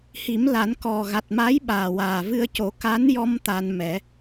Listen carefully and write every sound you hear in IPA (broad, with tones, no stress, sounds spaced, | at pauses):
h i˨˩˦ m l a˨˩˦ n k ɔ˨˩ ɣ a˨˩ t̚ m a˧˥ j ɓ aː˨˩ w aː˨˩ v ɨ˧ ə̯ c o˨˩˦ k a˧˥ n j ɔ˧ m t̪ a˧ n m ɛ˨˩˦